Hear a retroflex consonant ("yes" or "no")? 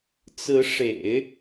yes